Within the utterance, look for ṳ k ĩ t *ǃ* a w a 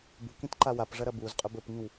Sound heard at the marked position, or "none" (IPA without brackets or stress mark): ǃ